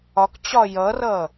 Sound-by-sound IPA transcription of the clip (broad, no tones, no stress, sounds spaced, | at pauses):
ɒ k t͡ɕ ɒ j ʌ r ʌ